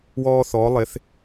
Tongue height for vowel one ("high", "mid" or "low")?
mid